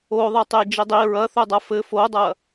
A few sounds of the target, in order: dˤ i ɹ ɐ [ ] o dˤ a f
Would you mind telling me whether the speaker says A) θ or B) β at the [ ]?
A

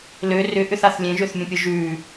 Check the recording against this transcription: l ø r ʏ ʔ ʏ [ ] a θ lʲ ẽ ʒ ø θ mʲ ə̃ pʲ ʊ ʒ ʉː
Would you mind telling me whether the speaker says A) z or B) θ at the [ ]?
B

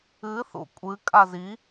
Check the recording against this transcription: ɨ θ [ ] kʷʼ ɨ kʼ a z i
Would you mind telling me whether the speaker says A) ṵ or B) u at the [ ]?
A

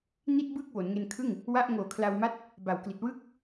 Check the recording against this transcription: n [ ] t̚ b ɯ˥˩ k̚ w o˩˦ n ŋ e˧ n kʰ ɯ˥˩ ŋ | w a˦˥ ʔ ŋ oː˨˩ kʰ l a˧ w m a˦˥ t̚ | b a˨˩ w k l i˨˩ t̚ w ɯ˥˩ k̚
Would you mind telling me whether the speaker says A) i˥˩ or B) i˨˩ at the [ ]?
A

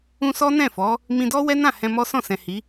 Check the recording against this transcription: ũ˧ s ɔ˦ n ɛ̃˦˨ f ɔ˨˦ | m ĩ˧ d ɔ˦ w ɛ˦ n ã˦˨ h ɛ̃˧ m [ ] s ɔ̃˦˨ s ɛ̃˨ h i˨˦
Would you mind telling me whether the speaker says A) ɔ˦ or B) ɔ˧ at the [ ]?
A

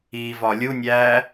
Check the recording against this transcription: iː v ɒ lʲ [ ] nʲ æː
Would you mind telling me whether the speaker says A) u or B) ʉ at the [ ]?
A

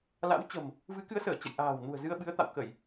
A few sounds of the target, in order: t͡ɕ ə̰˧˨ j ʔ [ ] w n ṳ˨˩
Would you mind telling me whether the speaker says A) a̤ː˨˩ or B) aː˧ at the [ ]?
A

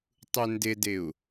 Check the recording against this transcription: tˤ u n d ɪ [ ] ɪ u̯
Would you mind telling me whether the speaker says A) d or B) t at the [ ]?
A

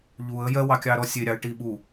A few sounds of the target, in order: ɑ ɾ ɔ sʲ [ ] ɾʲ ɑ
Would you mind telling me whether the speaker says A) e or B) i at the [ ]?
A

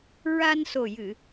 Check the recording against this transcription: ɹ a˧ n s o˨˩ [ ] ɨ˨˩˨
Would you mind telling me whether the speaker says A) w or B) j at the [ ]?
B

